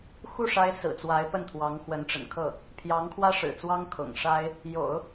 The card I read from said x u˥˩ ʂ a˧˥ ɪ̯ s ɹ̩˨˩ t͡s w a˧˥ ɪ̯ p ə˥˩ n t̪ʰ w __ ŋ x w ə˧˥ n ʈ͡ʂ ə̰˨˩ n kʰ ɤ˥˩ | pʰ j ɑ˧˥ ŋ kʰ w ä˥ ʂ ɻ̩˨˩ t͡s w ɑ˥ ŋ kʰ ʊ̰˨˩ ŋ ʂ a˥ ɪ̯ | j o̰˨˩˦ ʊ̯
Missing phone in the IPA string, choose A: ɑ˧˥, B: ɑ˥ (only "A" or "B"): A